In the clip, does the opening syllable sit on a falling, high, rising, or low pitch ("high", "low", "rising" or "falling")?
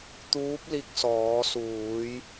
rising